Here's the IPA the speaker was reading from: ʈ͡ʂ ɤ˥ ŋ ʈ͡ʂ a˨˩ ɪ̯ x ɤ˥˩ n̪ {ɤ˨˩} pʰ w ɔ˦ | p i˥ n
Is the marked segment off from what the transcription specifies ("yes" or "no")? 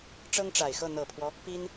no